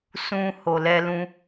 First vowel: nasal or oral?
nasal